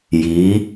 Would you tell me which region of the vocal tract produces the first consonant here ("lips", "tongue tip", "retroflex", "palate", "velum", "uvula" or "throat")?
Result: palate